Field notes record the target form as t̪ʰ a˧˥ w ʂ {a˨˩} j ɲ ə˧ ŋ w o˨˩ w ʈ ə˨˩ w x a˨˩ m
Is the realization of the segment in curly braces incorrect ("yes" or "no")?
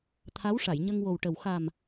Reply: yes